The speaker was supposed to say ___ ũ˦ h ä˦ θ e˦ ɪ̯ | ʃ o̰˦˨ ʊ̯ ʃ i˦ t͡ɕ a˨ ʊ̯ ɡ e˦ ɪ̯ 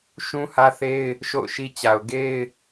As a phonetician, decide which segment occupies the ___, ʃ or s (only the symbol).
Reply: ʃ